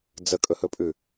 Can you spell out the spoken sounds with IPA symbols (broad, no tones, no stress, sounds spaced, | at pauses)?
d͡z ə kʼ ɵ h ɵ pʼ ʉ